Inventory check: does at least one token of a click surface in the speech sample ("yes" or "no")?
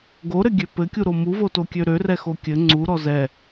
yes